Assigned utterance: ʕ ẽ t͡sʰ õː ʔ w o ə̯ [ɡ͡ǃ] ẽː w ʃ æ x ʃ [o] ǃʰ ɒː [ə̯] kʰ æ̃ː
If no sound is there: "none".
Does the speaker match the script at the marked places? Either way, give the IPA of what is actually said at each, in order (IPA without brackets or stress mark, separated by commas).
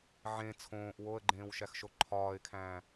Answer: ɡ͡ǃ, o, ɪ̯